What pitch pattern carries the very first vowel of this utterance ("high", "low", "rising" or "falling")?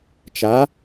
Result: rising